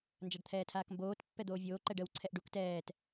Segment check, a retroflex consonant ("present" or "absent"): present